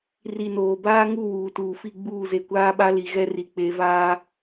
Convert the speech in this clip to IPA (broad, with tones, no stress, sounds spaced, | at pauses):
r i˨ n oː˨ b aː˦ ŋ u˦˨ w uː˨ t uː˨ f i˦˨ ɡ͡b uː˦˨ z e˨ kʷ aː˦ ɓ a˦ l i˨ ɣ ɛ˦ r i˨ k͡p e˨˦ v aː˦